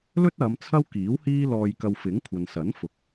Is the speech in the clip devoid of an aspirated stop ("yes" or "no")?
no